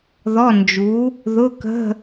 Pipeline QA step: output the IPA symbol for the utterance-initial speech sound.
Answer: ð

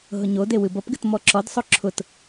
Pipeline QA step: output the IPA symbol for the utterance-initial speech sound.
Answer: ɦ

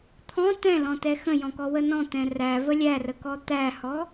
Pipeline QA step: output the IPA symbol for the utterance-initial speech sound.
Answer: t̪ʰ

